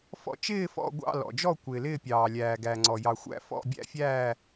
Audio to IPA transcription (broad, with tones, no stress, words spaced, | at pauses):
fɔ̰˦˨ t͡ʃɪː˦˨fɔ̰˦˨ ɡʷɑ̰˦˨ lɔ̰˩d͡ʒɔ˦˨ kʷɪː˩lɪː˦˨pʲɑː˩ lʲæː˩ɡæ˩ŋ͡ǀɔ˩ jɑ˩xʷæ̰˦˨ fɔ̰˦˨ bʲæ̰˦˨fʲæː˦˨